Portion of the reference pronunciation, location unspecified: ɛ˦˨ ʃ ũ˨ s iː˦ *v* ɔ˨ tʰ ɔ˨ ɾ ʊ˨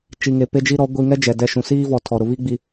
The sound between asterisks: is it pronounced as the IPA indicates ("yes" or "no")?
yes